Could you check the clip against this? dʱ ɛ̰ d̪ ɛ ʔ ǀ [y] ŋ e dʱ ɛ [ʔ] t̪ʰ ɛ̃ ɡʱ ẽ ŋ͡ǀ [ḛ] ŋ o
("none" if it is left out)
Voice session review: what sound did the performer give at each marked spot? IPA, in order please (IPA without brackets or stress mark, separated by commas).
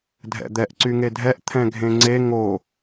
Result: y, ʔ, e